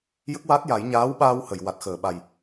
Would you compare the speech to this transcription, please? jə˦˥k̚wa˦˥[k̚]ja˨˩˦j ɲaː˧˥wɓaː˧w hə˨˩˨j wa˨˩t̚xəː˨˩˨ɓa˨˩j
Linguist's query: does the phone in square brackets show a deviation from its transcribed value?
yes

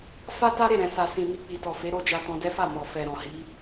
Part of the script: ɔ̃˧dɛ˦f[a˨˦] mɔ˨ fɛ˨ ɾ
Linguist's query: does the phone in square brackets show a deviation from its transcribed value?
yes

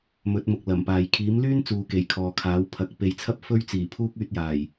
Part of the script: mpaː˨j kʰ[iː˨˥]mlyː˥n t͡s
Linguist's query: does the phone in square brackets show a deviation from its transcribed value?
no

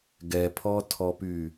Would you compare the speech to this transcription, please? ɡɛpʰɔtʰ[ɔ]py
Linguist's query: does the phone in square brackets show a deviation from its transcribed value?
no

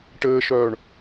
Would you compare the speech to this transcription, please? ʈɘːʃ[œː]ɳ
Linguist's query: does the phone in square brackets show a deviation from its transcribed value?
no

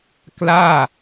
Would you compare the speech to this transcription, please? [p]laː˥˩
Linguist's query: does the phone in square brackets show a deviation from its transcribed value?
yes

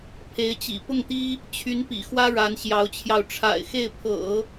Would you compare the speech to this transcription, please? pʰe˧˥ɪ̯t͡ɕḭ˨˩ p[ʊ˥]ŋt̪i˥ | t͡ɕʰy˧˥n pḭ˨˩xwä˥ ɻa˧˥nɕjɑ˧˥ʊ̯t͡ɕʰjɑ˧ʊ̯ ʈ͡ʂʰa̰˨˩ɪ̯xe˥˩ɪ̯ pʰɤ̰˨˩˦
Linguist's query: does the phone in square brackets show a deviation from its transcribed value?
yes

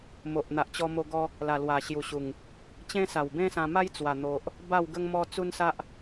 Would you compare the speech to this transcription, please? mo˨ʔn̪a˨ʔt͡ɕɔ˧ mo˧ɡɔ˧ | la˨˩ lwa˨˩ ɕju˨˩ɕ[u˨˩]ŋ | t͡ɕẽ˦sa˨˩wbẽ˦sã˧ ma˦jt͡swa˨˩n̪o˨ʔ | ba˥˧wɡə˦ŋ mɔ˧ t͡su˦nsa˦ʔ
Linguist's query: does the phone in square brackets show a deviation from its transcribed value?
no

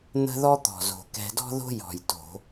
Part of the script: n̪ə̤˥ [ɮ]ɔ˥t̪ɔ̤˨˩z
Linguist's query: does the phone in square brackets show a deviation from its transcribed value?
yes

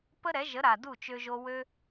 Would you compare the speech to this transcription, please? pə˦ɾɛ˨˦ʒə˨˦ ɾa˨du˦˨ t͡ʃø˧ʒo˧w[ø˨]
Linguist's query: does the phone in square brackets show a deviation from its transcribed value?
yes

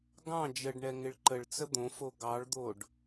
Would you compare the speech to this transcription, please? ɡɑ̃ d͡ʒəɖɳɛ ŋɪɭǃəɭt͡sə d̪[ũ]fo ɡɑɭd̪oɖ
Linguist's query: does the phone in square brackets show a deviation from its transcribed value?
yes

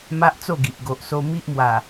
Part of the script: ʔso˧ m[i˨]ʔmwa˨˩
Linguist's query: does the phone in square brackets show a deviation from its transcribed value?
yes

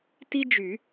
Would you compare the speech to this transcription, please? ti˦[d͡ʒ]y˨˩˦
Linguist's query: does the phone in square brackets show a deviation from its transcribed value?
no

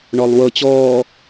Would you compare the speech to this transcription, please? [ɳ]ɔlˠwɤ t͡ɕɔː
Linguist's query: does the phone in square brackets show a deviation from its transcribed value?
no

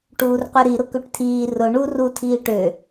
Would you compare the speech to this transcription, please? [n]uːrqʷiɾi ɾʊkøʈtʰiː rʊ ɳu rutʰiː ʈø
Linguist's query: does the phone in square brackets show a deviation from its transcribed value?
yes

